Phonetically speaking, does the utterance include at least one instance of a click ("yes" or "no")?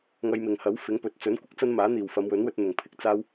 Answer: no